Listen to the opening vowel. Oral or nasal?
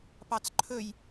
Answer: oral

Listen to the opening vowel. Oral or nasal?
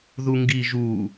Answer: oral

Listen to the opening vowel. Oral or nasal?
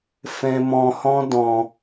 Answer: nasal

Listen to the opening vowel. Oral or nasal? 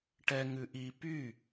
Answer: oral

